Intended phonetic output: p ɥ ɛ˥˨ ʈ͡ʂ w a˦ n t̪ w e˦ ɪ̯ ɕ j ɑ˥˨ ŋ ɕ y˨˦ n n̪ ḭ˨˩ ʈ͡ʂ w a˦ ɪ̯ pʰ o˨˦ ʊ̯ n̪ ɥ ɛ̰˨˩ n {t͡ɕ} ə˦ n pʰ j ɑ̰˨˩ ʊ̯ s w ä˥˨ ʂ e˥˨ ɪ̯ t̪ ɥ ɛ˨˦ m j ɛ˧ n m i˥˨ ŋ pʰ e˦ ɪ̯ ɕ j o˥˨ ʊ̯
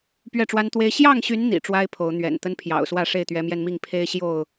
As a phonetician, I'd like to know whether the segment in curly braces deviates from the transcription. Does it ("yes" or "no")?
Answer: yes